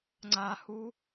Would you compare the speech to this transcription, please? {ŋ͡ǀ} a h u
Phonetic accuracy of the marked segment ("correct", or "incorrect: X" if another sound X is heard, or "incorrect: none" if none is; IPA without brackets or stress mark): correct